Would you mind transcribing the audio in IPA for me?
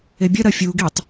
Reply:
e bʲ ɐ ɾ ɐ fʲ u ɡ i tˤ

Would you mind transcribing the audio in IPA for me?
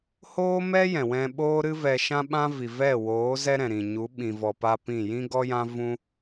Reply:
h oː˦ m ɛ˦ j ɛ̃˨ w ɛ̃˧ ɓ oː˦ ɾ ɨ˦ v ɛ˧ ʃ ã˦ ɓ ã˦ v i˨ v ɛ˦˨ w oː˨˦ z ɛ˦ ɾ ɛ̃˨ ɾ ĩ˨ ɲ u˨˦ ɓ ĩ˨ v ɔ˨ p a˧ p ĩ˦˨ j ĩ˦ ɡ ɔ˦ j ã˦ v ũ˦

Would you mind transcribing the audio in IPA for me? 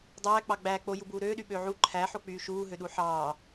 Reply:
dˤ æː k͡p ɑ ɡ͡b æː k͡p o j u b uː ɾ øː ɗ y ɓ øː ʕ u ǃʰ æ ħ o k͡p yː ʃ uː ɦ ø ɗ u ħ ɑː

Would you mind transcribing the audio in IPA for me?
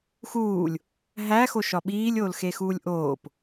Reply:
x uː lʲ | ɦ æ x o ʃ ɒ ɓ iː lʲ oː l x e x uː lʲ ʔ oː p

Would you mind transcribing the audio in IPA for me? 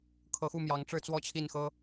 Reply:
kʰ ɤ˧˥ x u˥˩ m j ɑ˧˥ ŋ ʈ͡ʂ ɻ̩˥˧ t͡s w ɔ˥˧ t͡ɕʰ i˥˩ n x ɤ˥

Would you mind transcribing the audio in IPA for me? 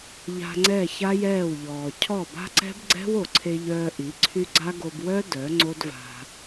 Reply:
ʎ a̤˧ ŋ͡ǀ ɛ˦˨ ç a˦ j ɛː˦˨ w ʎ ɔː˨ cʰ ɔ˦˨ b a̤˦ ǀ ɛ̤˦ b ɡ͡ǀ ɛ̤˦ w o˨ ǀʰ e˧ ʎ œː˧ ʔ i˨˦ ǀʰ y˦ ɡ͡ǀ a˦ ɡ o˧ b w œ˦ d œ˨˦ ŋ͡ǀ o˦ d v a̤˧

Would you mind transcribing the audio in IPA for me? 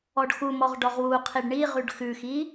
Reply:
ɔ ɖ x u m ɔ ʁ ɖ ɔ ʁ w u qʰ i ɖ ɳ i ʁ ʉ ɖ x ʉ x i

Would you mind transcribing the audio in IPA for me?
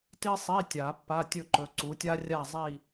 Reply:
t i˥ sˤ i˧˥˧ tʲ a˨˩˦ pː a˧˥˧ tʲ ɵ˥˧ ǃ ɵ˨˦ ǀ u˨˦ tʲ a˥ rʲ a˥˧ zˤ i˥˧

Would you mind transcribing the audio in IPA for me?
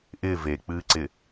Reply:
ʔ ɪː v e k͡p ɨː ǀ ɪ

